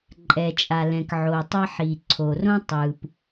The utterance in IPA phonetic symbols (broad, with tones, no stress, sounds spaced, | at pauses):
ǃʼ ɛ˩ t͡ʃʼ a˩ l ɛ̃˩ k ʕ o˩ tˤ ʌ˥ ħ i˩ ǀʰ o˩ r õ˥ tˤ ɯ˩ p